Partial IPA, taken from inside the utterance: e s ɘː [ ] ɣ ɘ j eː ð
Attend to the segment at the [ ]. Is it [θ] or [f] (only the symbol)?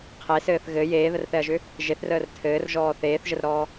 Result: θ